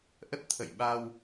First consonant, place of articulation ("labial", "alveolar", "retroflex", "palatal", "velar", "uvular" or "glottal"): glottal